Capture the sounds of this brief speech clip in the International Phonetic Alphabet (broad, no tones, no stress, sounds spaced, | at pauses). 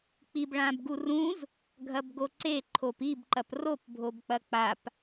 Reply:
k͡p i b ɭ ã b ɡ u r ũ z | ɡʱ ɐ b ɡ o ǀ e ǃʰ o p i b ǃ ɐ p r o p bʱ o b k͡p ɐ k͡p a p